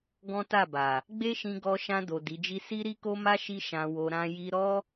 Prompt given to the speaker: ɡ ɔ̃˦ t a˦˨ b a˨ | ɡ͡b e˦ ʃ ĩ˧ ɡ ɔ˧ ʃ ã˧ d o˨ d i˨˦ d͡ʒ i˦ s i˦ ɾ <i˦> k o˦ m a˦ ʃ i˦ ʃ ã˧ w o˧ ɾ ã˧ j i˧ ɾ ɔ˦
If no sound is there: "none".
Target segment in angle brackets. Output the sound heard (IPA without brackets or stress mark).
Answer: i˦